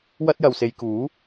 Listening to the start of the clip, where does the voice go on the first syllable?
high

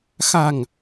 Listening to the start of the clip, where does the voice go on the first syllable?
low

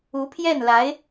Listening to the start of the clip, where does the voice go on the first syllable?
rising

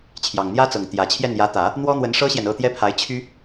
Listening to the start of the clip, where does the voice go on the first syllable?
low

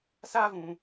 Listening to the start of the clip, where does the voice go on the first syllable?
high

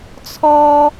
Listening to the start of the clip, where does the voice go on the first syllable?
high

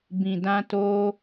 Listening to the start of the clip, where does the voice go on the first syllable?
low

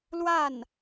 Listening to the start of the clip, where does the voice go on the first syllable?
falling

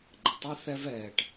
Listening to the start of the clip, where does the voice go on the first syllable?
low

